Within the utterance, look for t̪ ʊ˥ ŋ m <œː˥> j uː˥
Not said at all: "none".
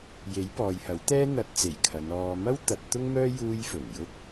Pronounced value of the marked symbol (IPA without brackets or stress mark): œː˥